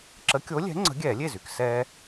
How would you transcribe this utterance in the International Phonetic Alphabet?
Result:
ǁ ə˨˥ kʲ o˨˥ lʲ ɛ̤˨˥ ŋ͡ǀ ə̤˨˥ ɡʲ ɛː˧˩˧ lʲ e˥˩ z y˩ k s ɛː˧

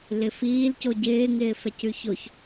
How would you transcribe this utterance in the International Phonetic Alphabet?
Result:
l ɪ f iː l c o ɟ ɪː ŋ ɪː f ɛ c ʉ ç o ç

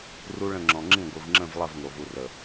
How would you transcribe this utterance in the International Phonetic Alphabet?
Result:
r u˦ ɭ ə̃˦˨ ŋ͡ǁ ɔ̃˨ ŋ͡ǁ ĩ˦˨ ɡʷ i˨ v ŋ͡ǁ ə̃˦˨ v lˠ ə˦˨ v ŋ o˨ v u˨ r ə˨

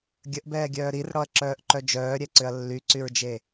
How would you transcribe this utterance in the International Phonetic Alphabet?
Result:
ɡʲ ə ʔ b ɛː ɡʲ œː ɾ i r ɽ ɔ ɐ̯ ǁ œː ʔ ǃ œ d͡ʒ œː ɾʲ ɛ ǀ ʏ ɐ̯ lː y ǀ y ɹ d͡ʒ e

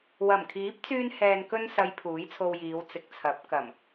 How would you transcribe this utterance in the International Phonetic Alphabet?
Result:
w ɐ˨˩ m kʰ iː˨˥ p̚ t͡s yː˧ n h ɛː˨ n k ɵ˧ n s ɐ˨˧ j pʰ uː˨˥ j t͡sʰ o˧ w j iː˨˧ w t͡s ɪ˨˥ k̚ t͡sʰ ɐ˨˥ p̚ k ɐ˨˩ m

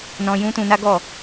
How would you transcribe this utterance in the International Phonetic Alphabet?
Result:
n ɔ̃˦ j ũ˦ t ũ˧ n a˦ ɡ ɔ˦˨

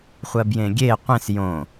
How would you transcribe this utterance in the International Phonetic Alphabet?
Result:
χʷ ɜ b j ẽ ɡʲ e qʷ ẽ s j õ

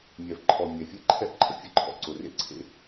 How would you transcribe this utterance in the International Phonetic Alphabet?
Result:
mʲ ɛ˨ v ǃʰ ɔ˨ mʲ ɛ˨ fʲ ɛ˦ ǃʰ ɛ˦ ʔ ǃʰ ə̰˨ fʲ ə˦ ǃʰ ɔ̰˨ ǀ ʊ˨ r ḛ˦ ǀʰ ḛ˦

